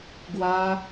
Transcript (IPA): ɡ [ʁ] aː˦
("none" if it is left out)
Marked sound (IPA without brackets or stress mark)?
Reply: w